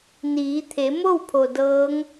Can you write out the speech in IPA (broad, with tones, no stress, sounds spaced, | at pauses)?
n iː˩˧ t̪ʰ e˩˧ m o˥˨ w pʰ o˩ d ɤː˧˥ ŋ